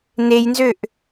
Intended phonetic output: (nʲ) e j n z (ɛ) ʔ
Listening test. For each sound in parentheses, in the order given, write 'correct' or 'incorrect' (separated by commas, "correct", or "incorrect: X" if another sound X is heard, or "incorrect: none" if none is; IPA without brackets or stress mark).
incorrect: n, incorrect: ø